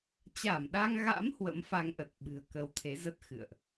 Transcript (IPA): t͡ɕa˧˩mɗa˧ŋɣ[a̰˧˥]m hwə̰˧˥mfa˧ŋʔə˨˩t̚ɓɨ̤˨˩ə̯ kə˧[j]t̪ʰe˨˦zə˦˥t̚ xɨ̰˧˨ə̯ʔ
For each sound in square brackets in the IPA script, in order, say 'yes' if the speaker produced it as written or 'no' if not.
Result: yes, no

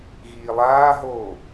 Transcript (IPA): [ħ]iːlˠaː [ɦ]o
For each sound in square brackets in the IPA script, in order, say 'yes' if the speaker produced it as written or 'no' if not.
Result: no, yes

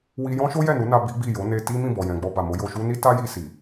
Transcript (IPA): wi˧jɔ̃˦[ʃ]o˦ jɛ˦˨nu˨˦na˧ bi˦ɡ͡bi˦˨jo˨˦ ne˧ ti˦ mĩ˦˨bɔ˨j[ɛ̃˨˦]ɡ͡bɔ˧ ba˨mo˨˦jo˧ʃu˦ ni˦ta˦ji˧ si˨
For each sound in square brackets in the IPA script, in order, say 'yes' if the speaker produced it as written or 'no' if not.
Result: yes, no

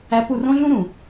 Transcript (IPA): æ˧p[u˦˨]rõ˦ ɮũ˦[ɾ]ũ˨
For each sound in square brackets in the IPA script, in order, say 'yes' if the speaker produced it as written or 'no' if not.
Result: yes, yes

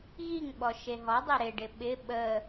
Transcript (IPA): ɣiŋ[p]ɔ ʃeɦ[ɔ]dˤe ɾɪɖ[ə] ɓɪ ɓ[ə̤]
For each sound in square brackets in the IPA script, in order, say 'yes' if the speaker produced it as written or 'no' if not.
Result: no, yes, no, no

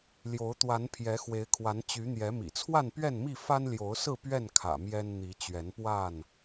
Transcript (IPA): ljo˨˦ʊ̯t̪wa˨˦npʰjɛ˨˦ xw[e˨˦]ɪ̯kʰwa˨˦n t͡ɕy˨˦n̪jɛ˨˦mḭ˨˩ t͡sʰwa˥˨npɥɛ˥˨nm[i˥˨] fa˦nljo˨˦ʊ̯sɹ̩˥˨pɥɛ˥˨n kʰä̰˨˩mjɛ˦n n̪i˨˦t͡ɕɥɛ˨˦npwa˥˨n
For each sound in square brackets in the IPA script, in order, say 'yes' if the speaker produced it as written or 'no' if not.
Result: yes, yes

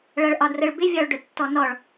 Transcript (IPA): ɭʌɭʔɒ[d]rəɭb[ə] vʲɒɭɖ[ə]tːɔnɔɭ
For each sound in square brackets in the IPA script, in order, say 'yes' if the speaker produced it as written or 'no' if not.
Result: yes, no, no

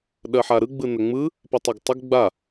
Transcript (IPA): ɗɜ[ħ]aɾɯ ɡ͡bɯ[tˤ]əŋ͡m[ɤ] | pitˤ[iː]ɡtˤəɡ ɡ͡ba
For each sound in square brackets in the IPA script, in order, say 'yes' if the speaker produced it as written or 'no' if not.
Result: yes, no, no, no

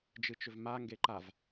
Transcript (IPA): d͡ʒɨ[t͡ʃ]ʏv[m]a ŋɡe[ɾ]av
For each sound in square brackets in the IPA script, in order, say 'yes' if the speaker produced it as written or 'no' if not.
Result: yes, yes, no

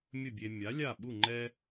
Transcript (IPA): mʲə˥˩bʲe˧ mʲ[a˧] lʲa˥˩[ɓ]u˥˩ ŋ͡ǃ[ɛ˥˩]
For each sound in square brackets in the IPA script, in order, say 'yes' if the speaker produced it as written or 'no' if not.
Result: no, yes, no

